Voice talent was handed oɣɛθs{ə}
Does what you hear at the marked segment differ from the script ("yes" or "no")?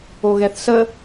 no